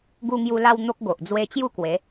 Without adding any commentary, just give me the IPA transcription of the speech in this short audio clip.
ɡ u˧ ŋ j u˧ l a˧ w n̪ o˦ k̚ ɡ o˨ ʔ d͡z w e˧ t͡ɕ j u˥˧ k w e˨˦

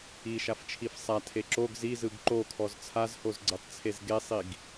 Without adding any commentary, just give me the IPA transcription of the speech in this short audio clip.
i ʃ a f t͡ʃʰ i f sˤ a tʰ e ǁ o ɡ z i z ɯ ɡ ǃ o kʰ ɔ z t͡sʰ a z h o z ɡ͡ǀ e tˤ t͡sʰ e z ɡ e sˤ i ɡ

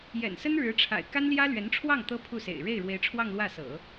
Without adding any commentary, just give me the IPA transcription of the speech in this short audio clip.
j ɛ̰˨˩ n s ə˥ n ɻ ɻ̩˧˥ ʈ͡ʂʰ a̰˨˩ ɪ̯ k a˥ n l j ä˥ l ɥ ɛ˧˥ n ʈ͡ʂʰ w ɑ˥˩ ŋ t̪ ɤ˥ pʰ u˥˩ s ḛ˨˩ ɪ̯ ɻ e˥˩ ɪ̯ ɻ w e˧˥ ɪ̯ ʈ͡ʂʰ w ɑ˥˧ ŋ l w ä˥˩ s ɤ̰˨˩˦

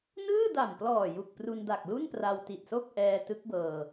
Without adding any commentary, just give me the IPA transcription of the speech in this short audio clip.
n ɯː˥˩ d a˨˩ m p l ɔː˨˩ j u˨˩ k̚ p r u˧ n d a˨˩ k̚ l u˥˩ n p r a˧ w t i˨˩ t̚ s o˥˩ k̚ ʔ ɛː˧ t ɯ˦˥ k̚ b ɤː˧

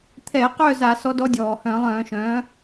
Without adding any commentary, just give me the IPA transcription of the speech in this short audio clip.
t̪ʰ ɛː˧˩˧ q œ˥˧ z a˧˩˧ s ɔ˧˥ d ɔ˧˥ dʲ ɔː˩ h œ̃ː˧˩˧ lˠ œ̃ː˧˩˧ ʃ œ̃ː˩˥

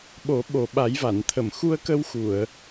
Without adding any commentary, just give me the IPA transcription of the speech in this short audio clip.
ɓ o˨˩˦ ɓ o˨˩ ɓ a˨˩˦ j v a˨˩˨ n t̪ʰ ə˨˩˨ m x u˧ ə̯ k ə˧ w x u˨˩˨ ə̯

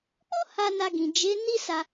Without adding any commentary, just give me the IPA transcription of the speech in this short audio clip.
k͡p o˦ h a˧ n a˧ ɡ ĩ˨ d͡ʒ e˨˦ n i˦ s a˧

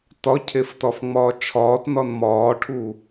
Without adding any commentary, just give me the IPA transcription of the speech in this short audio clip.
t ɒ cʰ e f t ɒ f ŋ͡m ɒː t͡ʃʰ ɒː t n ɒ n m ɒː ʈʰ u

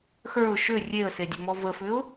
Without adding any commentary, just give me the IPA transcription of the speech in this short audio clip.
x ə˞ ʊ̯ ʃ ʏ rʲ e ə̯ s e dʲ ə m ɔ v ə f ʏ ʊ̯

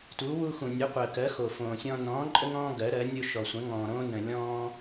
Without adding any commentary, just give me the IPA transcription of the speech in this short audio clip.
t u˨˥ w u˦ x ũ˨ nʲ u˨˥ qʷ əː˨ k ɜ˨˥ x o˨ f õː˨ sʲ ɔ̃˦ n ɔ̃ː˨˥ ǃʼ ə˦ ŋ ɔ̃ː˦ ɡ ɜ˨˥ ɾ ɜ˨˥ nʲ o˦ ʃ ɔ˨ sʷ ə̃˨˥ ŋ ɔ̃ː˨ ɾ õː˦ n ə̃˨ lʲ ɔ̃ː˦

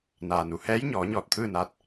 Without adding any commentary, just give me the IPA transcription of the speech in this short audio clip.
n aː˩ n u˩˧ h ɛː˧˥ j ɲ ɔː˩˧ ɲ ɔː˧˩ t̚ t̪ʰ ɯː˥˨ n aː˧˥ t̚

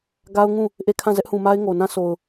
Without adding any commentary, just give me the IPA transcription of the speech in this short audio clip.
ɡ a˦ ʊ̯ ŋ ũ˦˨ | ʔ e˦˨ kʰ ã˦˨ z ɛ˦ ʔ h ũ˨ m a˦ ɪ̯ ŋ o˨ n ã˦ s o˨ ʊ̯

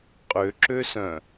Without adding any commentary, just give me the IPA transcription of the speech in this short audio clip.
qʼ ø ǁ ø s œ̃

